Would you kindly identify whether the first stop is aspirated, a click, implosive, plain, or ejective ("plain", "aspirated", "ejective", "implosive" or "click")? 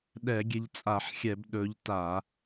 implosive